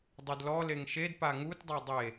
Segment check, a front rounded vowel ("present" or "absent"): absent